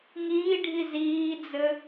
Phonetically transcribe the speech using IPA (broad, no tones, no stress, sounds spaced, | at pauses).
ŋ iː ɖʱ i z iː d͡z ɘ